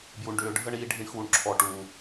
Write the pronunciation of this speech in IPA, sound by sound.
b j u˧ ɳ ɖ ʏː˧ ɖʱ ə˦ ɳ iː˧ ɖʱ i˧ ɳ x uː˨ ɳ ǁʰ ɔ˨ ʈ uː˨

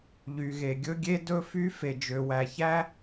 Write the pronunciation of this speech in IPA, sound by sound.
ʎ y˩ ɣ e˩ ɡʲ ɵ˥ ɡʲ e˥ d ɵ˥ f y˥ f e˩ d͡ʒ ø˩ w æ˩ ç æ˥

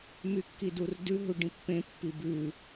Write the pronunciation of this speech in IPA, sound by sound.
m y kː i d u r d ʉ ɦ u ɖ ĩ pː ẽ pː i b ʉ

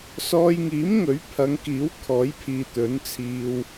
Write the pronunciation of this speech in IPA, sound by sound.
s ɔː˧ j ŋ iː˨˥ m ŋ ɵ˨˥ ɥ pʰ ɐ˨˧ ŋ k iː˨˥ w kʰ ɔː˨˥ j pʰ iː˨ t̪ ɵ˨˥ n t͡sʰ iː˧ w

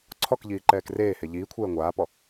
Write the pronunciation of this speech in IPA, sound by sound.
ǀʰ ɔ k ʎ iː ǃ ɛː k r eː h e ʎ iː kʷʰ ɛː ŋʷ aː p ɔ

